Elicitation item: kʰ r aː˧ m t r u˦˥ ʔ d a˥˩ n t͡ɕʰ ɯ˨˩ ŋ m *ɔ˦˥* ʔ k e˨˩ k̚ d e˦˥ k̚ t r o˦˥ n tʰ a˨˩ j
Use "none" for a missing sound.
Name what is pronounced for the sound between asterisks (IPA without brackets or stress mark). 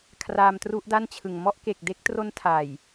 ɔ˦˥